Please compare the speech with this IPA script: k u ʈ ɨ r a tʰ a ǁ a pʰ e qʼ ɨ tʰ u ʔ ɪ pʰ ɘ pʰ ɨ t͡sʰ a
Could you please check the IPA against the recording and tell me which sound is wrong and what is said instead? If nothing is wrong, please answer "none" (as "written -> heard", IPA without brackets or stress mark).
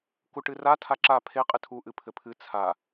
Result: ɪ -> ɨ